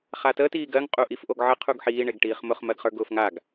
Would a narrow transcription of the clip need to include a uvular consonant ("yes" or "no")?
yes